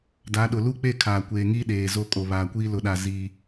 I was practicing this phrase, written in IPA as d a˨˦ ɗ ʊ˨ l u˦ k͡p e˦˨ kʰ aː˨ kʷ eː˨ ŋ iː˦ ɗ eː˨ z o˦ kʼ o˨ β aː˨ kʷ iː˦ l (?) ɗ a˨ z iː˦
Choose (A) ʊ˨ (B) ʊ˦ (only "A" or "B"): A